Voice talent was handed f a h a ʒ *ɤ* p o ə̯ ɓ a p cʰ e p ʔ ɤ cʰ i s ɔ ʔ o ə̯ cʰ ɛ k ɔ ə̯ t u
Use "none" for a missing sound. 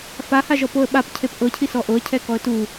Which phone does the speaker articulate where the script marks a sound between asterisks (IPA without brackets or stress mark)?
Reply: ɔ